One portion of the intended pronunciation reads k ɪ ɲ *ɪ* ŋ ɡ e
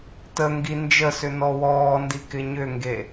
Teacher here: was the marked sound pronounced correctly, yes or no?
no